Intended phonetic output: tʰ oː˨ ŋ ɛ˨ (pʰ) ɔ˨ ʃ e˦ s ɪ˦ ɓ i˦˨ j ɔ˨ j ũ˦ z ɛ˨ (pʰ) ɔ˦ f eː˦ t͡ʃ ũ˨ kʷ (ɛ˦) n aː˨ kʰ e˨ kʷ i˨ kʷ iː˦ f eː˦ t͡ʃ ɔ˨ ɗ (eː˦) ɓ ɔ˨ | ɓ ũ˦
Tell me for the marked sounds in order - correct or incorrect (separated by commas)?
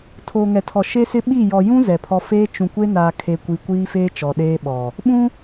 incorrect, correct, incorrect, correct